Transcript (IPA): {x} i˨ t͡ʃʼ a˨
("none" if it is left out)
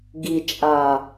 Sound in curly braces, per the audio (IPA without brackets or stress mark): ɡ